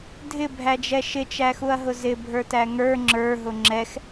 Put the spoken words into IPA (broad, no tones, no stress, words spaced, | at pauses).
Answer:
dʱɪbʱæd͡ʒɛ ʃɪt͡ʃæxuɐ̯ɦʊ zɪbʱə˞tæ ŋə˞ ŋ͡ǁə˞ɦʊ ŋ͡ǁɛx